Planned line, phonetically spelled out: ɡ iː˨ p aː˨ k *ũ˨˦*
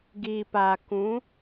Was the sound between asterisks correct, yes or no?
yes